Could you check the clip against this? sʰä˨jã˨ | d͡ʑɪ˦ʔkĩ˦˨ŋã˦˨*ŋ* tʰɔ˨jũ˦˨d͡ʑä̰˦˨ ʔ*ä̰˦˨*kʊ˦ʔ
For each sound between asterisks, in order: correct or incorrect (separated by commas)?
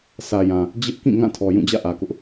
incorrect, incorrect